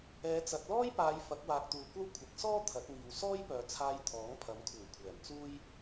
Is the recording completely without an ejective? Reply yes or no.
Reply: yes